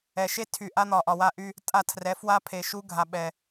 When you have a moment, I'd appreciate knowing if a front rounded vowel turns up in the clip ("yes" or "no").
yes